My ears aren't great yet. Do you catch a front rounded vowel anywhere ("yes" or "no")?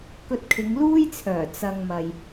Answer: yes